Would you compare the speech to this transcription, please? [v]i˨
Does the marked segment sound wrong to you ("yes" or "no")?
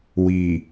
yes